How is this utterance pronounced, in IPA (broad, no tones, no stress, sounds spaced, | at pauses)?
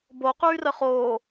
b o q yː r ə χ oː